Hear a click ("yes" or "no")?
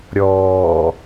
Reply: no